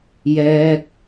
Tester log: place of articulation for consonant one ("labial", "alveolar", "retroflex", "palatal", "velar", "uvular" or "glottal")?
palatal